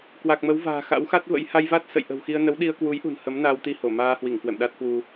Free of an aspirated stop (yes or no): yes